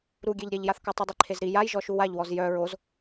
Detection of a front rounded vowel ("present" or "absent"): present